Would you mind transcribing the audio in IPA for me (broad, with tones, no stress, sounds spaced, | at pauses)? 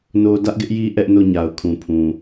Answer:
n o˦ d ä˦ ʔ ɡ ɪ˦ ʔ j i˦ ʔ ɛ˦ ʔ n o˦˨ ɲ a˨ ʊ̯ kʰ ũ˨ pʰ ũ˨